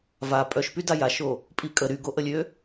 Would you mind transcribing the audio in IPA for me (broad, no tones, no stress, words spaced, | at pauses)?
va pʼœʃpy dajaʃo | pʼikʼə ɾyɡoʔəlʲø